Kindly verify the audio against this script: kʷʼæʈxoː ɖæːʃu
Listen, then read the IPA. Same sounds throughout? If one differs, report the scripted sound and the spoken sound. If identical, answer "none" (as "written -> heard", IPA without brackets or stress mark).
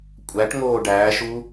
x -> ŋ